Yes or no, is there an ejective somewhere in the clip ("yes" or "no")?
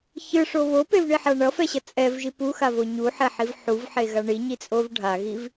yes